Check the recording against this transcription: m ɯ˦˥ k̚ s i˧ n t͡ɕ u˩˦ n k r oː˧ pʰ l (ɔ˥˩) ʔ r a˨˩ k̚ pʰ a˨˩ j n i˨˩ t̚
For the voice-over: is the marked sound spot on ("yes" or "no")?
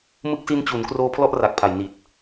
yes